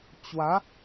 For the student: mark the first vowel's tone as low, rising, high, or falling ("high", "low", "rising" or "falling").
rising